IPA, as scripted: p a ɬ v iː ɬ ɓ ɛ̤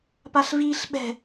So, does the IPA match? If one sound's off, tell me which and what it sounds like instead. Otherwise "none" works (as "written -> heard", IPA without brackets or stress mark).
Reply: none